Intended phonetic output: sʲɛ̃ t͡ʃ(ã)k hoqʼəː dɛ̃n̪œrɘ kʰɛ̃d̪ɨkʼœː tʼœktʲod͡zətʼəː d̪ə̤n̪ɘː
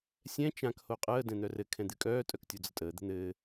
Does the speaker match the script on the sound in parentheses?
yes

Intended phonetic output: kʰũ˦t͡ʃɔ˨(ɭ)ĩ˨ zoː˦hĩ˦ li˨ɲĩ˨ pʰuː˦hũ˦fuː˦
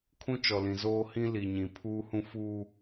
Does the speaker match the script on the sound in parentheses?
no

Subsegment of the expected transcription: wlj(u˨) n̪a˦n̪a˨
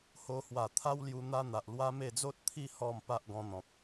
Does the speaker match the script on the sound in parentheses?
no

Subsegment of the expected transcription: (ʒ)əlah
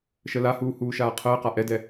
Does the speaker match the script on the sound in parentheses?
no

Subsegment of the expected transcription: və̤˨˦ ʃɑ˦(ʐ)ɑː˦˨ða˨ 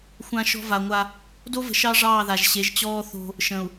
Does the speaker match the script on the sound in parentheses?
yes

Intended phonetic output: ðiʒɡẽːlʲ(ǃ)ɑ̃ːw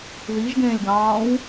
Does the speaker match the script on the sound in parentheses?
no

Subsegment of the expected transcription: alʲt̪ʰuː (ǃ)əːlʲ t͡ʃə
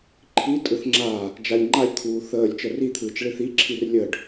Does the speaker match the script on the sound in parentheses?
no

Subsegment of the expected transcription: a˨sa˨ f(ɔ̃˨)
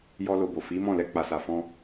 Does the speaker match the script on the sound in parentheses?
no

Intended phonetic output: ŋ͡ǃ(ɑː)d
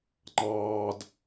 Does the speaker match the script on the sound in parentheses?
yes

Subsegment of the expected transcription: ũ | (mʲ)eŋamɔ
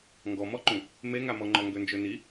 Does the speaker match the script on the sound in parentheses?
no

